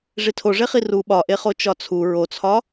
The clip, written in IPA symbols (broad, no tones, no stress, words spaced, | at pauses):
ʐitʰoʐeχi ru ɓɒʔeχo t͡ʃɒt͡sʰu ɹot͡sʰɒ